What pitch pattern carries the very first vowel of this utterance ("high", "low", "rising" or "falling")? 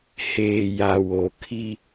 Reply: low